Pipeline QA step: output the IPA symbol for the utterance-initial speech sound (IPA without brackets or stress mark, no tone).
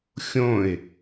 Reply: xʲ